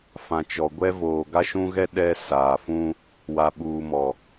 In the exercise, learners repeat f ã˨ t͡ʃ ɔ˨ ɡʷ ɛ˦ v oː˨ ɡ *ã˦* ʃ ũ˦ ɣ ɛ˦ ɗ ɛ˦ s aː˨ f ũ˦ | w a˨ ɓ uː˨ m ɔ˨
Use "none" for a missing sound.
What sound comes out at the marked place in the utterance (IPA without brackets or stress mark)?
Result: a˦